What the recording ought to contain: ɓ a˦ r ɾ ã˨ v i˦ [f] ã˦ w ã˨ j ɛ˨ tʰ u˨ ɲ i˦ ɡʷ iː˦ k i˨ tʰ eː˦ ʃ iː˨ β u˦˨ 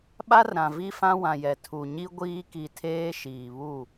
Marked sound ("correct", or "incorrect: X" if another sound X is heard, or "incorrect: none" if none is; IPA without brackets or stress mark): correct